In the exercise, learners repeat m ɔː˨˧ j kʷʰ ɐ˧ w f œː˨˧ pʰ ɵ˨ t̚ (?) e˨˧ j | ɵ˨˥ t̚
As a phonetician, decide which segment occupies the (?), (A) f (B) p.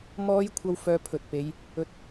B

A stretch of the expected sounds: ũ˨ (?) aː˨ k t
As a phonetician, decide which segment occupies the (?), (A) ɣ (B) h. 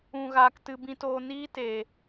A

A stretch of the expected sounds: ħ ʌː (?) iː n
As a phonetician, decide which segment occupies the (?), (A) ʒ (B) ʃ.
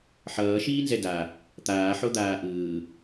B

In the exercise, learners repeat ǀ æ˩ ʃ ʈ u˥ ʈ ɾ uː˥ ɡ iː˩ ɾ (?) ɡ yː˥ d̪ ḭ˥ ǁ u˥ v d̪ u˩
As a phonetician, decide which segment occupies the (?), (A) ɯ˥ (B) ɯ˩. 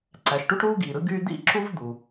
A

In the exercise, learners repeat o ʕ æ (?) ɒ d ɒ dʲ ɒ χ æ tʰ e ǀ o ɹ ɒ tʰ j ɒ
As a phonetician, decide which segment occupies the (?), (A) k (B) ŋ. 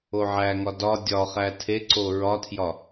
B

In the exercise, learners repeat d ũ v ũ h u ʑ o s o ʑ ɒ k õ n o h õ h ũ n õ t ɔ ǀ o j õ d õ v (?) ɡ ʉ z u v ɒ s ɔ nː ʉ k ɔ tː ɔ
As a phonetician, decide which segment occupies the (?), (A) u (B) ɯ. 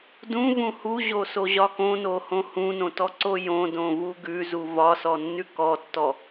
A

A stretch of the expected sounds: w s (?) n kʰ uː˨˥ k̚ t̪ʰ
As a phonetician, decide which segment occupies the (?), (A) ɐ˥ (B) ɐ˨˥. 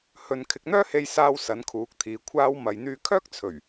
B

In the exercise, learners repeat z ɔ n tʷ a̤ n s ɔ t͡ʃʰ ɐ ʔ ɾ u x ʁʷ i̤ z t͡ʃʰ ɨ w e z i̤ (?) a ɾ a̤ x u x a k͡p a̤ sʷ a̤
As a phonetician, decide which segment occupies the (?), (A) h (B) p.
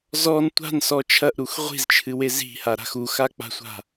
A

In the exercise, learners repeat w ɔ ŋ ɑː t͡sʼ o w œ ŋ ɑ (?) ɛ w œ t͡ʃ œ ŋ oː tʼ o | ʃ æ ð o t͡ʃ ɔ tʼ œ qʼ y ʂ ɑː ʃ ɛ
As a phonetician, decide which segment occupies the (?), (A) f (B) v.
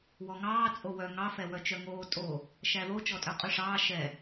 A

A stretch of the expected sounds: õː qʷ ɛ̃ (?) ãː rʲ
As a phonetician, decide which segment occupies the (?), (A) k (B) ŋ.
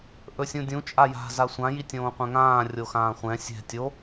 B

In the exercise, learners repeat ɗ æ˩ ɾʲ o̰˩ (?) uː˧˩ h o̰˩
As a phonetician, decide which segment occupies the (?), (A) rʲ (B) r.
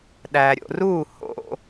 B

